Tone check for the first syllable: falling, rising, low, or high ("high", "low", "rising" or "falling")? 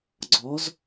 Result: rising